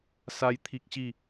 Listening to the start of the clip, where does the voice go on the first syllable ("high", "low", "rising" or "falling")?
high